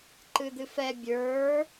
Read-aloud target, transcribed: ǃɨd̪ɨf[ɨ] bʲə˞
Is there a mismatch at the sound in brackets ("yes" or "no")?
yes